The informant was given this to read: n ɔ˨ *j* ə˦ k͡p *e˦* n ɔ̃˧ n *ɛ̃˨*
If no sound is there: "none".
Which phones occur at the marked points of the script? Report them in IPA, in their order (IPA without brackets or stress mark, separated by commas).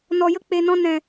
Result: j, e˨, ɛ̃˨